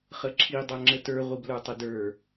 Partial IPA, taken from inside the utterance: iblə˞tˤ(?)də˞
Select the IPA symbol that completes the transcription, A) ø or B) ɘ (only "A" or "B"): B